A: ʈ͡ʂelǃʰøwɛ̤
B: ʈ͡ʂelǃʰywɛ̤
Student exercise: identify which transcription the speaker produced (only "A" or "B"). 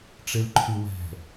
B